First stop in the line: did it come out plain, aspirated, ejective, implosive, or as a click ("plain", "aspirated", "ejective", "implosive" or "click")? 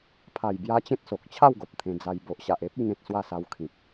aspirated